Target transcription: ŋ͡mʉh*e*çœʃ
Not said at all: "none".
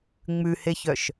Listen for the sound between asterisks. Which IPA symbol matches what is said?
e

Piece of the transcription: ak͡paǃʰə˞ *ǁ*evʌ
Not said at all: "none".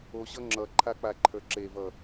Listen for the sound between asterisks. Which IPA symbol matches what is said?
ǁ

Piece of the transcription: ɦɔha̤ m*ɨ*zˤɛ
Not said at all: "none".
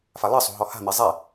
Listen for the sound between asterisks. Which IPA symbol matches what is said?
e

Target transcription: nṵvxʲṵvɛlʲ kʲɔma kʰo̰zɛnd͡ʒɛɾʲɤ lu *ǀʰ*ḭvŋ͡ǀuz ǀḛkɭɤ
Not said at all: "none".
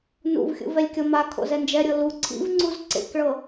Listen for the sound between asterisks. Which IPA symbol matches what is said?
ǀʰ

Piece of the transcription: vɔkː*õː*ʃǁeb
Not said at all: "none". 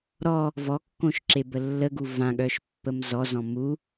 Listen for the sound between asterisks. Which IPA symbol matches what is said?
õ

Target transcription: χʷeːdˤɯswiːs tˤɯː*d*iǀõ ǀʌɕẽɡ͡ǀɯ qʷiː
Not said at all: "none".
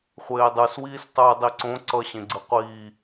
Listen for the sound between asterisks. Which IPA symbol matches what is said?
dˤ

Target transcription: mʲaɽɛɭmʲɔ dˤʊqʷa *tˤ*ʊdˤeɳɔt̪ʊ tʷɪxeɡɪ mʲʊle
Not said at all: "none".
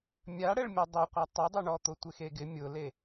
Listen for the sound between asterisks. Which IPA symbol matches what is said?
tˤ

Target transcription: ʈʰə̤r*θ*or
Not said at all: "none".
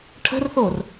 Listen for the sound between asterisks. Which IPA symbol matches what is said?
θ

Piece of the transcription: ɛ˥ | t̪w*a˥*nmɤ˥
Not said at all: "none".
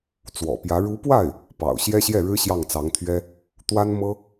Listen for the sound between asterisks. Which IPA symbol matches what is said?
a˥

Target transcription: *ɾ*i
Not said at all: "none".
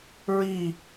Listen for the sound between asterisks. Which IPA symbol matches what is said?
ɹ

